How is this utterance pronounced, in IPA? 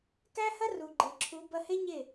k æ˦ h ɐ˦ r u˨ ɡ͡ǃ e˨ ǁʰ u˨˦ b ɐ˧ h e˦ ɲ e˦˨

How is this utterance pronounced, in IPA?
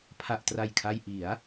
pʰ a˨˩ ʔ t r a˨˩ j kʰ a˧ j ʔ i˩˦ a̯

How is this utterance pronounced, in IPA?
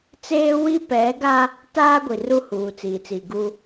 t͡s eː˦ w i˦ p ɛ˨˦ ɡ a˦ | t aː˦ ɡʷ i˨ r u˦ h uː˨ t͡s iː˨ t͡s iː˨ ɡ u˦

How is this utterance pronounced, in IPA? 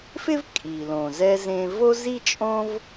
f ɪ˥ v kʼ i˩ l õ˩ z ɛ˧ z ẽ˧ v o˥ z i˥ t͡ʃʼ õ˥ v

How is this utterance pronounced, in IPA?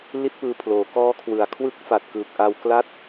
l i˥˩ t̚ p ɯː˧ pʰ l oː˩˦ k ɔː˦˥ kʰ w ɯ˨˩ a̯ kʰ w ɯ˦˥ k̚ f a˨˩ t̚ k ɯː˨˩ k̚ ʔ a˧ w k l a˥˩ t̚

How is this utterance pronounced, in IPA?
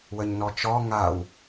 w ə ɲ n ɔ t͡ʃ ɔ ŋ a w

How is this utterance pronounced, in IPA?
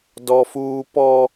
d ɔ˦ f uː˦ p ɔ˦

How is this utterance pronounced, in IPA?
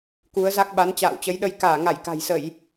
k u˨˦ ə̯ z a˦˥ k̚ ɓ a˨˦ n t͡ɕ a̰ː˧˨ w t͡ɕ ə˨˦ j ɗ ə˧ j k aː˧˩ ŋ a˧˩ j k a̤˨˩ j s ə˧˩˨ j

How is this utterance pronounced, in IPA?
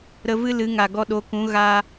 ɾ ə˧ v ɨ˦ l ɨ˨˦ ŋ a˨ ɡ ɔ˧ ɗ o˨˦ k ũ˨˦ ɣ a˧

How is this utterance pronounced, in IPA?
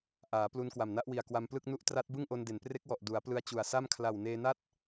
ʔ aː˩˦ p l u˧ n k w a˨˩ m n a˦˥ ʔ w i˨˩ a̯ k w a˧ m p l ɯ˥˩ k̚ n u˥˩ ʔ t r a˦˥ t̚ b ɯ˥˩ ŋ ʔ o˧ n d e˩˦ n p r e˦˥ k̚ w ɔ˨˩ ʔ d u˩˦ a̯ p l ɯ˧ a̯ t͡ɕ u˨˩ a̯ s a˥˩ m kʰ l a˨˩ w n eː˧ n a˥˩ t̚

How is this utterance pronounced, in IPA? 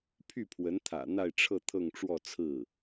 pʰ y˥˩ pʰ w ə˧˥ n t̪ʰ ä̰˨˩ n̪ a˥˧ ɪ̯ ʈ͡ʂʰ ɤ˥˧ t̪ʰ ɤ˥˧ ŋ ʈ͡ʂ w ɔ˥˧ t͡sʰ ɹ̩˥˩

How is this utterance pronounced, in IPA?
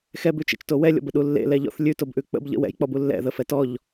x ɛ b ʉ t͡ʃ ḛ t͡ʃ t o w ɛ lʲ ɔ̰ b ə ɗ u lː ḛ l ɛ ʎ ɔ̰ θ lʲ ʉ t o b ʔ ʉ k͡p ə̰ b ʎ ə̰ w ɛ̰ j k͡p ɔ b u lː ɛ̰ ð ə f ɛ t ɔ ʎ

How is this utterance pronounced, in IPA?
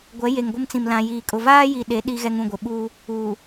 ɡʷ ɛ˨˦ j e˨ ŋ ɡʷ ɪ˦ m t͡s ĩ˨ m l ã˨ j iː˨ kʼ ʊ˨ v aː˦ j i˨ ɗ e˨˦ ɗ i˨ ɣ ɛ˨ ŋ ũ˦˨ ɡʷ ɪ˨ ɓ uː˦ | uː˨

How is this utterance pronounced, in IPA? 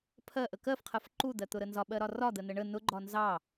pʰ ɜ ʔ ə k ɜ f qʰ ɜ f ǃ u d̪ ɜ t̪ ʊ ɾ ə n z ɒ ɓ ɜ ɾ ɒ r ɒ d̪ ə n ə ɳ ə n ʊ ɡ͡ǃ ɒ n z ɑ

